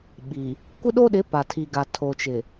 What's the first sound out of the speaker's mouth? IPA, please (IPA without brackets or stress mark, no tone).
ɓ